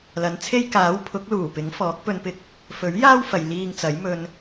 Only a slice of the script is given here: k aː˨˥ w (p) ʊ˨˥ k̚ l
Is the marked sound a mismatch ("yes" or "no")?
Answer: yes